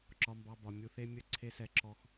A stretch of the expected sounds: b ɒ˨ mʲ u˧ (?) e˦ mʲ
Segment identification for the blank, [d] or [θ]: θ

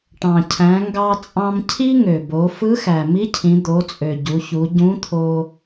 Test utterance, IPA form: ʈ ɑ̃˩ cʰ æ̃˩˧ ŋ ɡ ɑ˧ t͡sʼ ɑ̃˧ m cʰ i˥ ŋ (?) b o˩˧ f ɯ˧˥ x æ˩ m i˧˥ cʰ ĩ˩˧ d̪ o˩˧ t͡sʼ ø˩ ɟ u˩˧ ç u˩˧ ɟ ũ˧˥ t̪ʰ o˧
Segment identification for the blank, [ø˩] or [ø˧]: ø˩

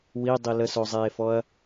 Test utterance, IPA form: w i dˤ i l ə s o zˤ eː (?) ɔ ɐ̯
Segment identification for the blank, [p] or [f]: f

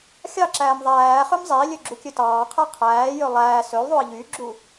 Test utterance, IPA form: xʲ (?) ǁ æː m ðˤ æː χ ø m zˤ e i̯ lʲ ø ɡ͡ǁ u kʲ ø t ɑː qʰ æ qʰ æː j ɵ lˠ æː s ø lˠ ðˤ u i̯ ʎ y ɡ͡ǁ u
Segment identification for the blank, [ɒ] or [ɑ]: ɑ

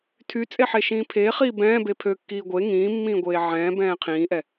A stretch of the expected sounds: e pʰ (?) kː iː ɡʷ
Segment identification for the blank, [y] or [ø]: ø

